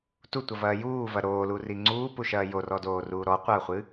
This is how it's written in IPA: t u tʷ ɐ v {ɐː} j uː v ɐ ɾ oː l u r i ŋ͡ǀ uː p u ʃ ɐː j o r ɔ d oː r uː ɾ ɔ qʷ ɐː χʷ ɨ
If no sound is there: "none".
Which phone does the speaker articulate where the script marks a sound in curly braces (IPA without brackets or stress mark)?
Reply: ɐː